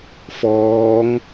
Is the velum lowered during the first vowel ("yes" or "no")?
no